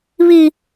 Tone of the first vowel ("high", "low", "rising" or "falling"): high